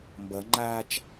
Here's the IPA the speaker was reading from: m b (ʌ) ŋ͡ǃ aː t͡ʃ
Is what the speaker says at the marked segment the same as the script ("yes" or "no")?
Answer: yes